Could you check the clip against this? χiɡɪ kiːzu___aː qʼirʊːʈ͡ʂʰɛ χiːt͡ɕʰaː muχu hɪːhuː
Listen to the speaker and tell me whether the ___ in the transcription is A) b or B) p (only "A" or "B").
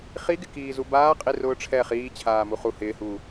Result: A